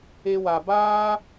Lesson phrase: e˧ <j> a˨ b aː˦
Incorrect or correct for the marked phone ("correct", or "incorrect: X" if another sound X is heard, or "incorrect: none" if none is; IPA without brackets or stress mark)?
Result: incorrect: w